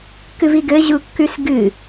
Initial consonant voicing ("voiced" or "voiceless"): voiceless